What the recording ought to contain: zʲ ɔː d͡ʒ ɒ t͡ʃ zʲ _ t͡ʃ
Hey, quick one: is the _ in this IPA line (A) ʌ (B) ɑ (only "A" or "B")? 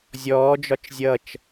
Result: A